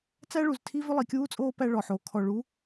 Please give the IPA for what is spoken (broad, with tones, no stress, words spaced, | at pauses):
t͡sæ˦ɭu˨ztʰi˦ vʏ˦lˠi˨kʲuː˦t͡sʼoː˦ pæ˦ɭɔ˨ħo˨˦ kʰɔ˨ɭu˨˦